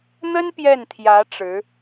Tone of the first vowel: high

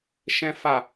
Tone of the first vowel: high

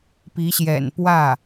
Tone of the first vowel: rising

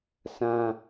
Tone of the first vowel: high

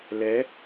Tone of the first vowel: rising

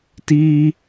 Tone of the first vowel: high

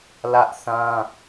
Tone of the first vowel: high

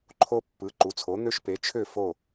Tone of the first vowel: high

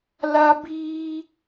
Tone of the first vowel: high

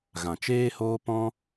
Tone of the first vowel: low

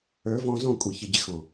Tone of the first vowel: rising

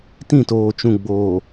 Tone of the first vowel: falling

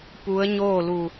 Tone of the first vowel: rising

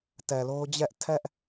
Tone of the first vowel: low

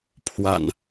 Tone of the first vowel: low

